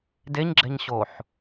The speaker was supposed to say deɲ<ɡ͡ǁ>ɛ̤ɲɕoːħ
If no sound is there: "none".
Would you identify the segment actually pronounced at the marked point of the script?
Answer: ɡ͡ǁ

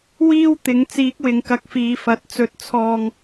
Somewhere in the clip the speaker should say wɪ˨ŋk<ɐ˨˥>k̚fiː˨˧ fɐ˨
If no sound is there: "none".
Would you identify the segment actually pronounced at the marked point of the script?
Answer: ɐ˧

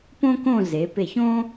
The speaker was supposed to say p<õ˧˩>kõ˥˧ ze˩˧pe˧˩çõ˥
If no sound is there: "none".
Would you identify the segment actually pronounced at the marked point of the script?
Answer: õ˥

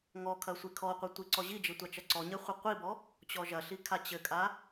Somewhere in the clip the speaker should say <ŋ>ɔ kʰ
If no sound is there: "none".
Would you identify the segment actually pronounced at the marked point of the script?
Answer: ŋ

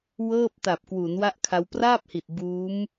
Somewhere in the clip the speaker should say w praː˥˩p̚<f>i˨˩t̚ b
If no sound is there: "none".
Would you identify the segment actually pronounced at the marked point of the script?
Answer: h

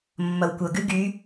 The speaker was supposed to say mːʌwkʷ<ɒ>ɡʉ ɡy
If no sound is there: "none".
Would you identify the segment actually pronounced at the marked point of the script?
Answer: ʌ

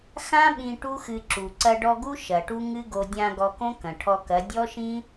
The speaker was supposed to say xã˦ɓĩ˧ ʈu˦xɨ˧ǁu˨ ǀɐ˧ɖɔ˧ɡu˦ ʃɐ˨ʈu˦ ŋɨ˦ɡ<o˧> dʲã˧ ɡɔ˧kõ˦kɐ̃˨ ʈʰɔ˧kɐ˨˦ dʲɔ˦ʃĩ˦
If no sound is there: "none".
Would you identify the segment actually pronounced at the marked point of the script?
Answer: o˧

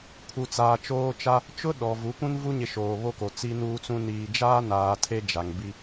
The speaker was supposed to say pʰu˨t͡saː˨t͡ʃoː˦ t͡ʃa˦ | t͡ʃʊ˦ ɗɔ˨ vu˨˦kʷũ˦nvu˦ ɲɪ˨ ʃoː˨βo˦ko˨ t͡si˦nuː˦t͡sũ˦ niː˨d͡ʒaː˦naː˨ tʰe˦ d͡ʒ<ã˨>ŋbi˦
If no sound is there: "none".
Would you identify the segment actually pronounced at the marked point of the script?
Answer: a˨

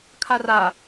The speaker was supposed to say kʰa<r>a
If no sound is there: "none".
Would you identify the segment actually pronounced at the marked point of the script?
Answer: r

